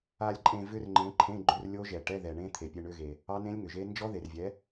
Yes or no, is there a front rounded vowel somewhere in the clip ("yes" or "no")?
yes